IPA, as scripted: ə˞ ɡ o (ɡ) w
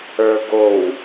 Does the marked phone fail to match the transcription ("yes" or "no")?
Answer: yes